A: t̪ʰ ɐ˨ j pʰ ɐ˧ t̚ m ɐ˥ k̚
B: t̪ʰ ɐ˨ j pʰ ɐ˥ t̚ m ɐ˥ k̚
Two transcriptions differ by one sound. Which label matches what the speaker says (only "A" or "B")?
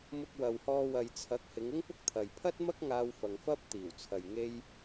B